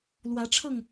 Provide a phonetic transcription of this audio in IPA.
l w ä˨˦ ʈ͡ʂʰ ɤ˥˨ ŋ

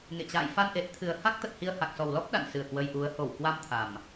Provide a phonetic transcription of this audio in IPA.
ŋ ḛ˧˨ t͡ɕ a̰ː˧˨ j f a˧ n ʔ e˨˩ t̚ t̪ʰ ɨ˨˩ ə̯ h a˦˥ k̚ t̪ ə˨˩ t̚ h i˧ ə̯ h a˨˩ k̚ s ɔ˨˩ w l ɔ˦˥ p̚ ɗ a̰˧˨ n s ɨ˧˩ ə̯ k w ə˧ j ʔ u˨˦ ə̯ h o˧˩ w k w a˧ m t̪ʰ a˨˩ m

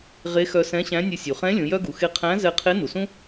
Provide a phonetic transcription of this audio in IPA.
ʁ e˧˥ x œ˧ s ɛ̃˧˥ ɕ æ̃˧˥ nʲ ɨ˧ sʲ u˩ χ ɛ̃˧˥ lʲ ũ˩˧ j œ˥ ɡ u˩˧ x e˧ qʰ æ̃˧˥ z ɛ˧ qʰ e˧˥ n u˩ s ũ˥

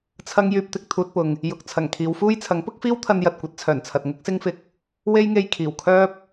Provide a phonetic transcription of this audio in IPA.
t͡sʰ ɐ˥ ŋ j yː˧ p̚ t̪ ɪ˧ k̚ t̪ʰ uː˧ t̚ p ʊ˨ ŋ | j ʊ˨ k̚ t͡sʰ ɐ˨˩ ŋ kʰ iː˨˧ w f uː˥ j t͡sʰ ɐ˨˥ ŋ p ʊ˥ k̚ f iː˥ w t̪ʰ ɐ˧ n j ɐ˨ t̚ kʷ ɐ˨˥ t̚ t͡sʰ œː˨˩ n t͡sʰ ɐ˨ t̚ ŋ ʊ˥ k̚ s ɪ˥ ŋ f ɪ˧ k̚ | w e˥ j ŋ e˧ j kʰ iː˨˩ w kʰ œː˥ p̚

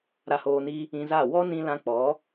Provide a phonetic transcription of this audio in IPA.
ɾ a˧ h oː˧ n i˦ | ĩ˧ z a˦˨ w ɔ˦ n ĩ˧ l ã˧ k͡p ɔ˨˦

